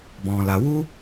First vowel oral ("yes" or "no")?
no